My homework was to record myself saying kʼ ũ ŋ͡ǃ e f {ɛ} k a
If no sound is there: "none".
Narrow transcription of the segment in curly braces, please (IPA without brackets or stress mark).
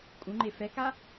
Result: ɛ